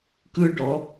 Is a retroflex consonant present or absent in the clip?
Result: present